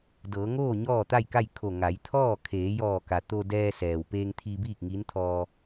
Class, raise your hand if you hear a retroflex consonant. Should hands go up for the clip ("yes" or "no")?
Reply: no